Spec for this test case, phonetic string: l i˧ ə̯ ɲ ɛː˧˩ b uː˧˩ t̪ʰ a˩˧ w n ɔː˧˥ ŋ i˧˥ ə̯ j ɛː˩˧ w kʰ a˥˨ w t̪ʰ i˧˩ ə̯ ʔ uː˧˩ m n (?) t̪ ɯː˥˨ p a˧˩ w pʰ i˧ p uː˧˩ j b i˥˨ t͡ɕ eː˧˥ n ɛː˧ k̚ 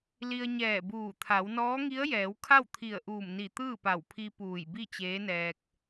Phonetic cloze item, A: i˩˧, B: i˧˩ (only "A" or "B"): B